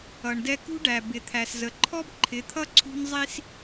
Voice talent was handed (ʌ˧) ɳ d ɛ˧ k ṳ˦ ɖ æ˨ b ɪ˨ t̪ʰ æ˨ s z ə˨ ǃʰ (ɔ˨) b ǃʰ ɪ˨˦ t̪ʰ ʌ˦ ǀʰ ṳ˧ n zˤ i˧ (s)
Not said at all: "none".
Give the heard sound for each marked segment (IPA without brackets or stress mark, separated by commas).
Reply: ʌ˨, ɔ˦, s